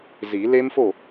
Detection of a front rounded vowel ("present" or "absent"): absent